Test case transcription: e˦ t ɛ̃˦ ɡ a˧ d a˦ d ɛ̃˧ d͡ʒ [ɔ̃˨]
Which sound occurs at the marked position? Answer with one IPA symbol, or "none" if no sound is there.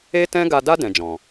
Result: ɔ̃˨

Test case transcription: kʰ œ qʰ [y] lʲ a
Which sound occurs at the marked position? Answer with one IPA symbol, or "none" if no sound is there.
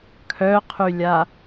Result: y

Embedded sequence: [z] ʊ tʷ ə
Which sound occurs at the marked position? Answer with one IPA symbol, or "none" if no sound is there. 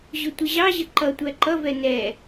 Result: ʑ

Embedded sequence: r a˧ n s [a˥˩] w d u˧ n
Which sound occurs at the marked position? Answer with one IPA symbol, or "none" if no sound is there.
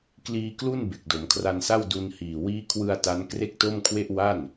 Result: a˥˩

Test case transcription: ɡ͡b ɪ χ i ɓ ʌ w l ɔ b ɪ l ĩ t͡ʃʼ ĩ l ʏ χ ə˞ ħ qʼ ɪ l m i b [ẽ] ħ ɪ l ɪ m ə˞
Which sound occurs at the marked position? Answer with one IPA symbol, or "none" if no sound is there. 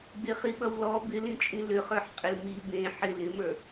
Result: ẽ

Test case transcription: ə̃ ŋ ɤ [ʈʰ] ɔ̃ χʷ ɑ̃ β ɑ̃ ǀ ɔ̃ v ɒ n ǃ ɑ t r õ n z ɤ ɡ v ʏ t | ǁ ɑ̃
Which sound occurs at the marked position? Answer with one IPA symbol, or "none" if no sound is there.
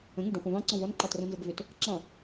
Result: ɖ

